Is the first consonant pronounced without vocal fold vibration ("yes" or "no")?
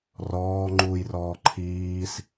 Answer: no